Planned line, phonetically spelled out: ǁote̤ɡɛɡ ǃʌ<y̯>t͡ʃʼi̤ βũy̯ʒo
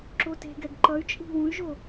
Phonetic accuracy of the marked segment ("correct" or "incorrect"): correct